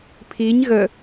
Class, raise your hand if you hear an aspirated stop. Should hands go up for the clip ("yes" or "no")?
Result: yes